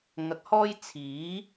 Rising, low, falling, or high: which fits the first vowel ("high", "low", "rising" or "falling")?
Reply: rising